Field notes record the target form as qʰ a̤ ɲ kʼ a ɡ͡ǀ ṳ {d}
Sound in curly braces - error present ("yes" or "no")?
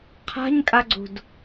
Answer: no